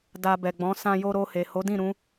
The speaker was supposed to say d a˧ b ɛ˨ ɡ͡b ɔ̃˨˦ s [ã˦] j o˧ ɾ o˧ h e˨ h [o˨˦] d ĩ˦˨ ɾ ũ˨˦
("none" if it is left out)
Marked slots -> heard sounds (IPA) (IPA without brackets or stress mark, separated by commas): ã˧, o˨˦